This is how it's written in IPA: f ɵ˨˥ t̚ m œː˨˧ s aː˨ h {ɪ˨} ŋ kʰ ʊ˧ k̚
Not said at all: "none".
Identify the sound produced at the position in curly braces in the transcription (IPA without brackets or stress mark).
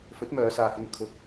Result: ɪ˧